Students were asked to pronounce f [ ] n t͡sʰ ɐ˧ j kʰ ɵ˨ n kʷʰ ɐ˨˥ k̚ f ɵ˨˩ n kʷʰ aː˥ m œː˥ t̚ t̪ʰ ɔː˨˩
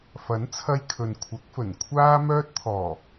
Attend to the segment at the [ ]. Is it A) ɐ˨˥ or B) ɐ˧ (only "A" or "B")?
A